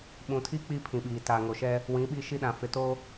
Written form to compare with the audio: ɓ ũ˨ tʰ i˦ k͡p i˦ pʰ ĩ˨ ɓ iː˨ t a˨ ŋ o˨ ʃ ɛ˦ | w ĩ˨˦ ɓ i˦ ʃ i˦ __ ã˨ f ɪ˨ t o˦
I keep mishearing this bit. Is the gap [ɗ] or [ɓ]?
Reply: ɗ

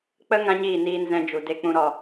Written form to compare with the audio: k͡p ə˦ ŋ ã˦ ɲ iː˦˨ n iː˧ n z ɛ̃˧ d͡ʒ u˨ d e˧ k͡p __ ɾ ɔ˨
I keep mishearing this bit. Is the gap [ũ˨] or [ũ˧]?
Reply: ũ˧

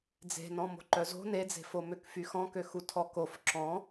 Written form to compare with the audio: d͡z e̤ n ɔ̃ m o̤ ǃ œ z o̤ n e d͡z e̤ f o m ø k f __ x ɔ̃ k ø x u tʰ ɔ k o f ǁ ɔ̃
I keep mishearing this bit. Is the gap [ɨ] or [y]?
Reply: y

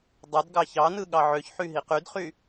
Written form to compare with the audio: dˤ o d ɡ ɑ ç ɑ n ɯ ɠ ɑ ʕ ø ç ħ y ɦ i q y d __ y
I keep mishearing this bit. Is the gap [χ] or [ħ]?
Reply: χ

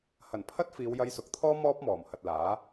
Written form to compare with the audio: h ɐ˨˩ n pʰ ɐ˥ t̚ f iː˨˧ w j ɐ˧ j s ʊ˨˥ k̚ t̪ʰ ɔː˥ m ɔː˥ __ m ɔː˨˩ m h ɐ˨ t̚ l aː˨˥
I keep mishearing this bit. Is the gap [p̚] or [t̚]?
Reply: p̚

